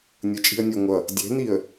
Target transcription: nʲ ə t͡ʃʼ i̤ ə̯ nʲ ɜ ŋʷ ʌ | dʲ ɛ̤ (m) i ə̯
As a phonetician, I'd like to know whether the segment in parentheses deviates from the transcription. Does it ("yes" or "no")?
yes